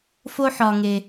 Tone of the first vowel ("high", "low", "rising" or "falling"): high